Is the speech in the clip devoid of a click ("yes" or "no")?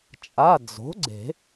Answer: no